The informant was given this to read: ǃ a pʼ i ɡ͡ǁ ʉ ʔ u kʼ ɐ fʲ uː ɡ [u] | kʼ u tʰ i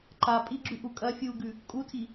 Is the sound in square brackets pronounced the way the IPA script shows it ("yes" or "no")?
no